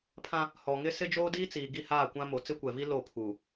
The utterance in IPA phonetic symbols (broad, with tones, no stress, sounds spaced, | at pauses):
pʰ ã˦ | h ɔ˨ ŋ ɪ˦ s ɪ˦ d͡ʒ oː˦ d iː˦ t͡s iː˨ ɡ i˦˨ h aː˦˨ kʷ ã˦ m o˨ t͡s ɪ˦ kʷ ɛ˨ v i˦ l o˦˨ pʰ u˨